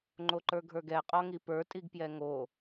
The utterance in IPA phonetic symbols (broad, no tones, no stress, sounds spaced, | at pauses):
ŋ͡ǃ o ǃ ə˞ ɡʱ ə˞ ɡ ɛ qʼ ɔ ŋ i p ə˞ tʼ i ɡ p j ɛ ŋ o